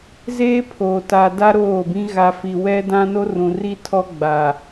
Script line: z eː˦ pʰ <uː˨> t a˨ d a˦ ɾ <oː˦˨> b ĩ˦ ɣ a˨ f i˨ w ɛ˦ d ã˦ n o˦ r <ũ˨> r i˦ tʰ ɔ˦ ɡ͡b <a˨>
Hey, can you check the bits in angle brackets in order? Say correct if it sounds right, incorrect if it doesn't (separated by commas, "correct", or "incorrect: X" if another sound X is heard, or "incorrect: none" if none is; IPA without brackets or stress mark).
incorrect: oː˨, correct, correct, correct